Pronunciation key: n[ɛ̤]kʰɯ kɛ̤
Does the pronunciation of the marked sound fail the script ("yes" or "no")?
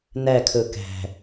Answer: yes